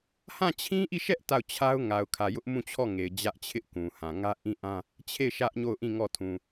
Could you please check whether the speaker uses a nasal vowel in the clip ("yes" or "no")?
yes